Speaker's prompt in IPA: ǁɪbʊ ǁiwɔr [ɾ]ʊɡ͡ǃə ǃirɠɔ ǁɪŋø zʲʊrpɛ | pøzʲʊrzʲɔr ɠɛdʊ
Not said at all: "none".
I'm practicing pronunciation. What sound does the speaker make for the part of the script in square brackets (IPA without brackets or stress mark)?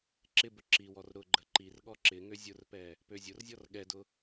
ɾ